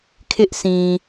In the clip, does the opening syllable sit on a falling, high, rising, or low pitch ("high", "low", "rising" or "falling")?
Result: high